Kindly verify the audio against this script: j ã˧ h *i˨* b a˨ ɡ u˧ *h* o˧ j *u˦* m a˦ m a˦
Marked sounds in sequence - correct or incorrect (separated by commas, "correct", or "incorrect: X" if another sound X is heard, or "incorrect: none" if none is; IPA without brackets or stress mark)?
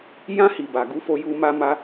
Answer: correct, incorrect: f, incorrect: u˧